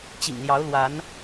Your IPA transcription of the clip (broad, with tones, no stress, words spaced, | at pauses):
t͡ɕḭ˨˩ŋljɑ˨˦ʊ̯lwa˨˦n